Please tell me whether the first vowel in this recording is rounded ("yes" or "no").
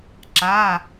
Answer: no